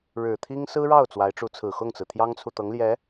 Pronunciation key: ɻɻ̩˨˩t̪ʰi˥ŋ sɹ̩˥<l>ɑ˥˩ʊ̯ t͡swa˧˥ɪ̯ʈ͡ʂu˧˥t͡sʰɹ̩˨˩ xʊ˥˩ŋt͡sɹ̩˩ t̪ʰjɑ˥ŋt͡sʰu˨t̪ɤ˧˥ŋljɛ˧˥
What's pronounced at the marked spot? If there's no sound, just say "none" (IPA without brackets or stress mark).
ɻ